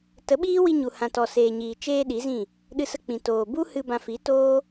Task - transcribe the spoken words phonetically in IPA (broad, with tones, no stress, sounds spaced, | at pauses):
t ə˨˦ ɓ iː˦ w i˧ ɲ u˨ h ã˨ t ɔ˨ s eː˨ ɲ iː˨ t͡ʃ eː˧ ɗ i˨˦ z ĩ˦˨ | ɗ ɨ˧ s ə˧ k͡p ĩ˨ t oː˨ b u˦ h ɨ˧ b ã˧ f i˨˦ t oː˦